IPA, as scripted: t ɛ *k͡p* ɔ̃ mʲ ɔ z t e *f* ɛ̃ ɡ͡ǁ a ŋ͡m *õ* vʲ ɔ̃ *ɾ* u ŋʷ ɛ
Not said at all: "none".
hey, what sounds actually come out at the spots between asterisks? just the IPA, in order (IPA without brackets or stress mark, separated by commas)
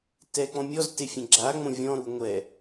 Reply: k͡p, fʲ, õ, ɾ